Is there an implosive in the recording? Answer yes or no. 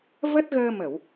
no